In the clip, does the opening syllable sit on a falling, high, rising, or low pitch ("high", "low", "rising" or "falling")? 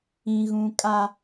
low